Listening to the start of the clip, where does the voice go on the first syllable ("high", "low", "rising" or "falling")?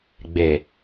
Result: low